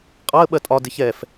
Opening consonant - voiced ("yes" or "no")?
no